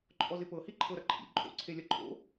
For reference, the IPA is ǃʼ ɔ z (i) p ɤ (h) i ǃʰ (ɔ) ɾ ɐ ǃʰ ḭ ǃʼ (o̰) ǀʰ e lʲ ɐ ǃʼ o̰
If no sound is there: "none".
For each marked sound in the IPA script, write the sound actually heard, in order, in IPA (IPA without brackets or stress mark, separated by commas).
ɪ, h, ɤ, o̰